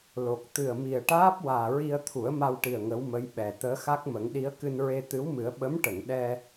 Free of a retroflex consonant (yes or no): no